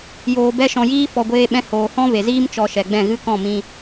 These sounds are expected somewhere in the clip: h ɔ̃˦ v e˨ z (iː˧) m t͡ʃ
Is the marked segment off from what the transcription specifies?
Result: yes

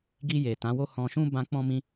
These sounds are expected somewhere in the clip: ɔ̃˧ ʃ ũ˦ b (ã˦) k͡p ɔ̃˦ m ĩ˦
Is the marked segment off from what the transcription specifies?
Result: no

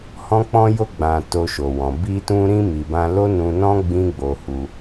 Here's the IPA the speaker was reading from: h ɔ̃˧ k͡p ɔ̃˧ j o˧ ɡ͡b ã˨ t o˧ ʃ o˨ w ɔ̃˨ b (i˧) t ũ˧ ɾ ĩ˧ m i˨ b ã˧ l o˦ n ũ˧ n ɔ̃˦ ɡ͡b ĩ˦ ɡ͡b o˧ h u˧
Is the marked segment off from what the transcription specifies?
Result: no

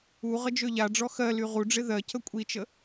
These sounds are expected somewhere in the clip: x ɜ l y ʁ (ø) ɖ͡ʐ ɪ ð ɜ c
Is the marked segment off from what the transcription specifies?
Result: yes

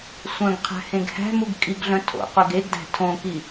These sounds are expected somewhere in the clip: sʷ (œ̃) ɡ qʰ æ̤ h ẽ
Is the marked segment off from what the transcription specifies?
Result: no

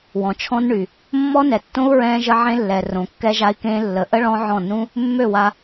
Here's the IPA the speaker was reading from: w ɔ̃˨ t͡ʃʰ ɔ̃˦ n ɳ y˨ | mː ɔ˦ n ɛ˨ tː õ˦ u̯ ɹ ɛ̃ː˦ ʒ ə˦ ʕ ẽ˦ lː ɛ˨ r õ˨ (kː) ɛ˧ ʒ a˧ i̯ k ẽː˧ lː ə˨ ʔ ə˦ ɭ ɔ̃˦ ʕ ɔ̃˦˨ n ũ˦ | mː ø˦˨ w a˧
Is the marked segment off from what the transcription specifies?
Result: no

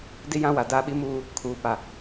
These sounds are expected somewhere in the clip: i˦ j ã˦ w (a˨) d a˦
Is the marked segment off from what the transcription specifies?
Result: no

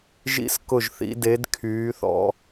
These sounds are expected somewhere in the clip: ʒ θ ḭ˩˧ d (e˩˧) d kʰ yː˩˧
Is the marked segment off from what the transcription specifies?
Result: no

